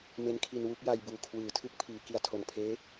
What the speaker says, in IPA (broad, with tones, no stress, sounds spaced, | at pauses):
m e˦˥ n kʰ i˧ n w u˦˥ k̚ j a˧ j b uː˨˩ kʰ w ɯː˩˦ tʰ ɯ˦˥ k̚ pʰ iː˩˦ k i˨˩ a̯ tʰ o˨˩ n pʰ eː˦˥